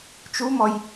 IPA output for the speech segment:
t͡ʃumɔj

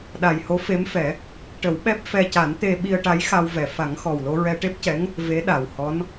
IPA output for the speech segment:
ɗa˨˩jho˧˥fe˧˥mfɛ˨˩˦ | ʈə˨˩˦wɓɛ˦˥p̚ fɛ˧ca˨˩˦nt̪e˧ ɓi˧ə̯ʈa˧˥jxa˧wvɛ˨˩ fa˨˩˦ŋxɔ˨˩w lo˧ɹɛ˧ʈe˦˥p̚cɛ˧˥ŋ | ve˧˥ɗa˨˩whɔ˧˥n

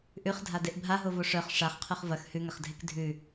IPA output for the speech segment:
ʔʉχdʱa deʔbʱaɦovo ʂœχ ʂaχqʰʉχ vɐx hʉŋɐχdʱek dʱʉ

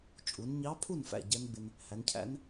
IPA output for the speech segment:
t͡ʃʼu˩˧nɲɑ˧˥pʰu˥˨nfæ̰˧˩ ɟɛ˧˥nɡ͡bɪ˧n | hæ˩˧ncʰæ̰˧˥n

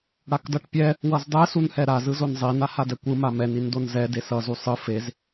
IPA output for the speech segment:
ɽakdʌʈpʲɛ | wʌzdˤɛ sunhɛɾa zɯzonzˤi nahadɛkʷɯ mamɛn indonzɛ desʌ zusˤɯ fez

